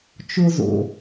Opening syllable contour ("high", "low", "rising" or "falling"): high